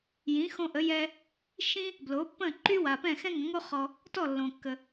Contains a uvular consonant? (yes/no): yes